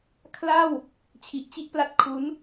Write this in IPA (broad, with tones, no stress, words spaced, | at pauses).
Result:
kʰla˥˩w | t͡ɕʰi˨˩ʔt͡ɕi˦˥ʔpla˦˥t̚kʰu˦˥n